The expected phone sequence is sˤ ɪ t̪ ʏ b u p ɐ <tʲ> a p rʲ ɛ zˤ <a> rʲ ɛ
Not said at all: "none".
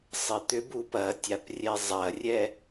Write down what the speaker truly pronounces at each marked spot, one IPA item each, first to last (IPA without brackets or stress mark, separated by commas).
tʲ, ɐ